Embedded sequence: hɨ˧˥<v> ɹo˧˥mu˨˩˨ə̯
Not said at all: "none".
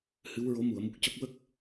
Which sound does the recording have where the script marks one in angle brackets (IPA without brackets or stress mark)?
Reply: w